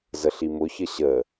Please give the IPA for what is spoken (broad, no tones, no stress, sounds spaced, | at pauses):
z ə ɬ i m ʊ ç ə ɕ ə